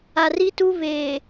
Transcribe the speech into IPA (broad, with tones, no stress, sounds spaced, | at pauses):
a˨ r i˦ t u˦ β eː˨